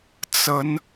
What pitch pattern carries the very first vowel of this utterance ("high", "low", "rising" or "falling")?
rising